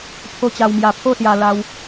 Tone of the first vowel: high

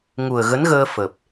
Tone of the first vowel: low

